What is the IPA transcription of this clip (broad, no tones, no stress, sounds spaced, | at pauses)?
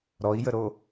ɾ ɔ i̯ j ə ɾ o